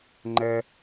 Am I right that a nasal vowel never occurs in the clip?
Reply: yes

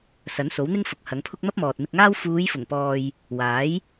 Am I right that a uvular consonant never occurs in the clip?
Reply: yes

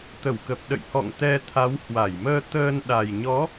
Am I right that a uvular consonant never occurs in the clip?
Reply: yes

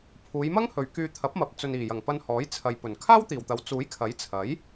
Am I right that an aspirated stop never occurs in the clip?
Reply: no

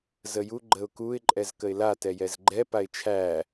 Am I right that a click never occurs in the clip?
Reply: no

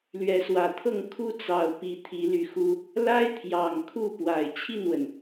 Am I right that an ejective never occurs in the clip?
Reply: yes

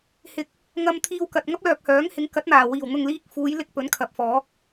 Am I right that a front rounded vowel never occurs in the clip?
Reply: no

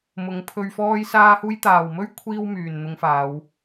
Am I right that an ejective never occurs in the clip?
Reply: yes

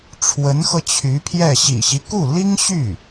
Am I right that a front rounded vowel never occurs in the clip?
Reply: no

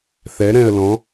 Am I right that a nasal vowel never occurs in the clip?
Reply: no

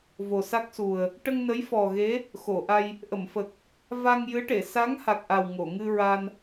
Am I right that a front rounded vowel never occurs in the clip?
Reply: yes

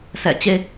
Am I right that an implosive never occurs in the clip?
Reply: yes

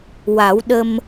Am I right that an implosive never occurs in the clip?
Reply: no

